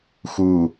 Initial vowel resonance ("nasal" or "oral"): oral